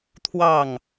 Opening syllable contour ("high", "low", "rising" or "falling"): falling